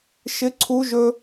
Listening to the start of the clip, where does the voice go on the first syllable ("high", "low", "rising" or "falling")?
high